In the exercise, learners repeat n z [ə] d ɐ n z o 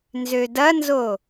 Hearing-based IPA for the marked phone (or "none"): ø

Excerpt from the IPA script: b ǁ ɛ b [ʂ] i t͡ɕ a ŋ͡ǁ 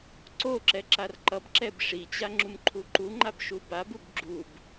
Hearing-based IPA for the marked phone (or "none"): ʂ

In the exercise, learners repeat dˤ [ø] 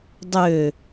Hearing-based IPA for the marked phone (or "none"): ø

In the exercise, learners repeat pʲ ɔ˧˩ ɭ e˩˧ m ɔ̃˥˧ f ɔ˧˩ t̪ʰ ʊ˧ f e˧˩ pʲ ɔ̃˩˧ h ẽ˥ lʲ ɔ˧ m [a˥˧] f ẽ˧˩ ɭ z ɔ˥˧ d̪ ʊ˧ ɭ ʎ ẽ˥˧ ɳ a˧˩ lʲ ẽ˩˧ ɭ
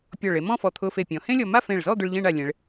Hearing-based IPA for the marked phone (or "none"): a˥˧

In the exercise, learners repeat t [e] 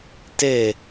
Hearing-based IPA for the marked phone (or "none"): e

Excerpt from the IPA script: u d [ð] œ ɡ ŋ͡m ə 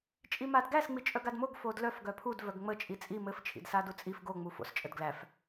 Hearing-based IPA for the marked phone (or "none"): v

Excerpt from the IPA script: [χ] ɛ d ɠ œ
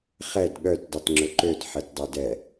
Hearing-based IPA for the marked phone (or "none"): χ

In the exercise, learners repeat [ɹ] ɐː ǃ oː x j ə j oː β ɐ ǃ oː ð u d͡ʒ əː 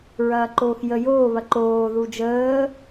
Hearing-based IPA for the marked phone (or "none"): ɹ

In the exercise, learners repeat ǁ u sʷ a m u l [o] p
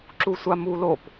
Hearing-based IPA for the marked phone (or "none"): o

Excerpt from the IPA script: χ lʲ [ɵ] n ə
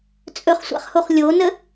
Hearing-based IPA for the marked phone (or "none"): o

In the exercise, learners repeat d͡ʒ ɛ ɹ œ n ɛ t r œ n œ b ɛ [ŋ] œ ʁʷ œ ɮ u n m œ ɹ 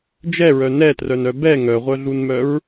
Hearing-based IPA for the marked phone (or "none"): ŋ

